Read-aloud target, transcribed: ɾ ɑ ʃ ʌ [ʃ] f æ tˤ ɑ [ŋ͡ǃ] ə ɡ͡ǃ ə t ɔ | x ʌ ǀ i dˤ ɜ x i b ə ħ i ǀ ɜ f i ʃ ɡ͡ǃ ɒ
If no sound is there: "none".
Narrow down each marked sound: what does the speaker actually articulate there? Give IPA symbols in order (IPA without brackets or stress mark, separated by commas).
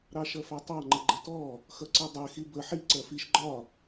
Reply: none, ŋ͡ǃ